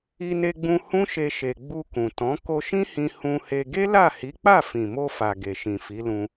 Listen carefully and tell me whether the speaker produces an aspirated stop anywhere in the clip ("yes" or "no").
no